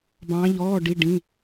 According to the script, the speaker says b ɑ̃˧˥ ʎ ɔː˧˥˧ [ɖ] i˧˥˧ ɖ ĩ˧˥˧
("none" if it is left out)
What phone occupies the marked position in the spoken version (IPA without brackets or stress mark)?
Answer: ɖ